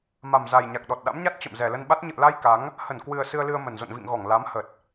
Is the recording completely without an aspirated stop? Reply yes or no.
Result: yes